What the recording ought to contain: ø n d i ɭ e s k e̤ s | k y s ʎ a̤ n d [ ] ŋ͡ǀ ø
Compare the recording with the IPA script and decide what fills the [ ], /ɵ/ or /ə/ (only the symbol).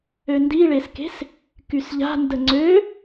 ə